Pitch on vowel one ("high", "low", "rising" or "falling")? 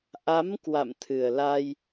rising